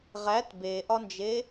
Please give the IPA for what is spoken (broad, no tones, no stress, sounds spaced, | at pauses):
ʁ æ t b e ʔ ɒ n d͡ʒ e